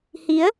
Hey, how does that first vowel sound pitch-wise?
rising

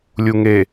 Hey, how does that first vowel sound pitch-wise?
low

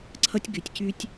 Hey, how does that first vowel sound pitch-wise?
high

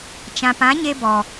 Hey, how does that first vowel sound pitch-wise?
low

